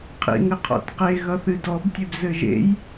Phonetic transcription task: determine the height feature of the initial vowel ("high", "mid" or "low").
high